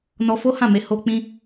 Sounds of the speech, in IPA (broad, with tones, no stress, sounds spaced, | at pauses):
n ɔ˧ f o˦ h ã˦˨ m e˧ h o˧ k͡p ĩ˧